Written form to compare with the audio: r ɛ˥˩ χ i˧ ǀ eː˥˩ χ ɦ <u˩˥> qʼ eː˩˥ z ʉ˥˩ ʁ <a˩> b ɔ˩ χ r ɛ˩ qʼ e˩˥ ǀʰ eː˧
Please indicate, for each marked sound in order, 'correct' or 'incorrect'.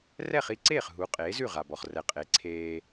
correct, correct

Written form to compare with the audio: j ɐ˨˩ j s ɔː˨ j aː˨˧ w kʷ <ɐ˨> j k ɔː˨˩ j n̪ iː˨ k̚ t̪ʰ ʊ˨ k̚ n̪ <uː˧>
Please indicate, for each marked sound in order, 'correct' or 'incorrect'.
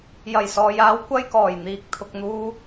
incorrect: ɐ˥, correct

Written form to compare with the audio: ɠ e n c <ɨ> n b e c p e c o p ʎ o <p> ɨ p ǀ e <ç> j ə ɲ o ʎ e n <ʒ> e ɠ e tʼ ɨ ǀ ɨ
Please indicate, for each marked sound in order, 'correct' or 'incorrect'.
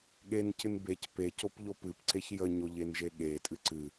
correct, correct, correct, correct

